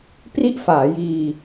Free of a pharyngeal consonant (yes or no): yes